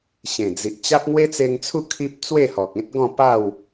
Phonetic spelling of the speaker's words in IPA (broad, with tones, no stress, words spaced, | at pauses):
ɕẽ˨˩d͡zi˨ʔ t͡ɕa˦p̚ŋwe˦t͡se˧ŋt͡sʰu˥˧ kʰi˦p̚ t͡swe˥˧hɔ˨k̚ẽ˦t̚ ɡɔ̃˥˧pa˥˧w